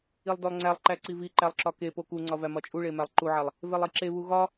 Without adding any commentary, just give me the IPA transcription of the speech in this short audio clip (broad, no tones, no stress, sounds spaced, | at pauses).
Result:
i lˠ d o lˠ ŋ͡ǀ æ lˠ ǃ æ ǀ i v i ǃ æ lˠ ǁ ɒ k e p o k u ŋ͡ǀ ɒ v æ m ɒ t͡ʃʼ u ɭ e m æ lˠ ǃ u ʕ æ lˠ | v e lˠ i ǁ e β u ɣ ɒ